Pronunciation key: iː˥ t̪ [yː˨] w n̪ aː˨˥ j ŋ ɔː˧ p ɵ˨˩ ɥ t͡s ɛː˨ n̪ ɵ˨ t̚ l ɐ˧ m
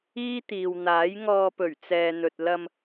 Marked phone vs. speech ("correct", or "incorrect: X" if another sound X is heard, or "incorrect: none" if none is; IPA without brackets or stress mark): incorrect: iː˨